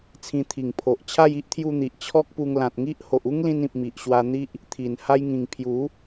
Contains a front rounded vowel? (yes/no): no